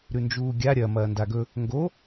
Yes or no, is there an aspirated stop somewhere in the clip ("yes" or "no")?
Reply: no